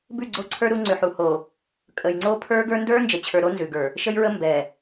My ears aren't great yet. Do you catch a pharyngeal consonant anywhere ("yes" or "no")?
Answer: yes